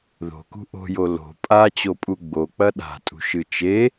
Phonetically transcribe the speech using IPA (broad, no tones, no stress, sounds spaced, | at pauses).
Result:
ð o̤ k ṳ ʔ o̤ j o l o̤ pʼ a t͡ɕ o pʼ u ɡ͡b o k͡p ɐ ɗ a̤ tʼ ṳ ʃ ɨ t͡ʃ e